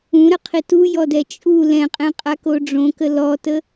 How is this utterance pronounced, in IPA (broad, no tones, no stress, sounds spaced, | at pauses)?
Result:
ũ ɾ ə qʰ i t u j ɔ d ɛ t͡ʃʼ u l ɛ̃ qʼ ɛ̃ qʼ a k o ɖ͡ʐ õ k ə l ɔ t ə